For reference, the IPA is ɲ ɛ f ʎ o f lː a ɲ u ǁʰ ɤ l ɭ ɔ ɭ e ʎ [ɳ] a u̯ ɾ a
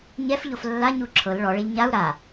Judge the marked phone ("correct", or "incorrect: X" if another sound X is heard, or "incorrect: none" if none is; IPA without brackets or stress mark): incorrect: ɲ